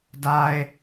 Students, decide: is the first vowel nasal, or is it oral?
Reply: oral